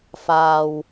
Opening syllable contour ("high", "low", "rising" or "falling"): low